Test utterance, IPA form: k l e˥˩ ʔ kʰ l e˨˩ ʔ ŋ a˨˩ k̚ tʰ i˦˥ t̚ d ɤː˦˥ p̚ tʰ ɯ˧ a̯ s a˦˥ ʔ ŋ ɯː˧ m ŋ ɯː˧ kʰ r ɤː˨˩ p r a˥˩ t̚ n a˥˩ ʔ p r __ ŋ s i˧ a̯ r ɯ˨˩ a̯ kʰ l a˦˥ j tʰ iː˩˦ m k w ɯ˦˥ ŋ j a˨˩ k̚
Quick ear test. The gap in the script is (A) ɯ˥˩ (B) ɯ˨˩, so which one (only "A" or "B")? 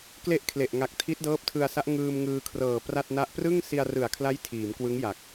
A